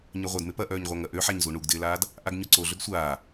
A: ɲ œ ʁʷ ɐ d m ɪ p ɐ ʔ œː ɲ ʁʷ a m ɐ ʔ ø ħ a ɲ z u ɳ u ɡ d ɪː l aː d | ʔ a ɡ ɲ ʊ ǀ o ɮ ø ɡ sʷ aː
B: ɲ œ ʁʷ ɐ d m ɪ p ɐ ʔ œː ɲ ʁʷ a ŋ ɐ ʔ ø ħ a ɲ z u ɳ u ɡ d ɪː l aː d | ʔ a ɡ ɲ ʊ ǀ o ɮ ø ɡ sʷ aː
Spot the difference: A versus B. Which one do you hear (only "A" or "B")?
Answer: B